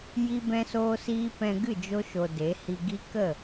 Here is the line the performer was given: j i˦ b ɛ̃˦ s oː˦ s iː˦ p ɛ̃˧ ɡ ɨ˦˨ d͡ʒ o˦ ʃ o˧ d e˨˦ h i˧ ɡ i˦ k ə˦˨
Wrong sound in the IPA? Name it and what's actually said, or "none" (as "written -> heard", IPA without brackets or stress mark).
none